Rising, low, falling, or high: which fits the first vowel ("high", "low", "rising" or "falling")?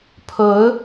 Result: rising